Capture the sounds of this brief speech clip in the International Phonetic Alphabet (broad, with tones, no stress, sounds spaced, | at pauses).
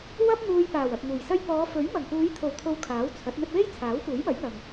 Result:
w ɐ˥ p̚ n̪ uː˧ j p aː˨˩ w ɐ˨ p̚ ŋ uː˨˩ j s ɐ˥ j p ɔː˨˧ f ɵ˨˥ ɥ m ɐ˨˩ ŋ p uː˨˧ j t̪ʰ o˨˩ w t̪ʰ o˨ w kʰ aː˨˥ w t͡sʰ ɐ˨˥ t̚ n̪ ɵ˧ t̚ w e˥ j t͡sʰ aː˨˥ w p uː˨˥ j m ɐ˨˥ j ŋ ɐ˨ ŋ